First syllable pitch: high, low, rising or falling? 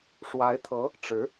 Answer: rising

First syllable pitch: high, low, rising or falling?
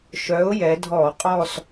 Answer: rising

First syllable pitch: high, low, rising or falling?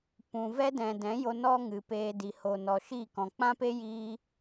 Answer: low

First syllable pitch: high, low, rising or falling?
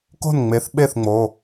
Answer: falling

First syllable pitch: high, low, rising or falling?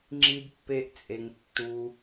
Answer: high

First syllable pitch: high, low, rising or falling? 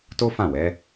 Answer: high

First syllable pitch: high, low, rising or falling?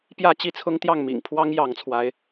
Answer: falling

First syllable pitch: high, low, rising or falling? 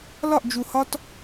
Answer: falling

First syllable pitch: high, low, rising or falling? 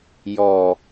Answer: low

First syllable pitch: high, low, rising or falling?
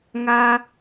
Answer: high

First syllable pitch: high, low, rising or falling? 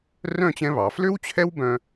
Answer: falling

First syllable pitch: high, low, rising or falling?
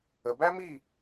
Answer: low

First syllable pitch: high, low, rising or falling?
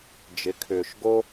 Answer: rising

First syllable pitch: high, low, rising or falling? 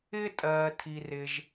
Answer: high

